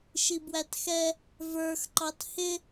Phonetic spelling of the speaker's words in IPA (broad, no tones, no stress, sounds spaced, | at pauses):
ʃ i b w æ t x ɛ | v ə˞ x ǃ ɑ t h ɪ